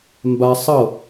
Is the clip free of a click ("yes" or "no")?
yes